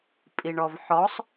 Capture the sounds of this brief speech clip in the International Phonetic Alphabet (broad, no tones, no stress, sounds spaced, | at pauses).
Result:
pʼ i ɳ ɔ v ħ ɔ sˤ